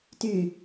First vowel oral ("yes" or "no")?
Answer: yes